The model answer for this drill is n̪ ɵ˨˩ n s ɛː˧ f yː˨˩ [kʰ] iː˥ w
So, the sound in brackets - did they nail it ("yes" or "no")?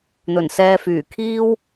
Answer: yes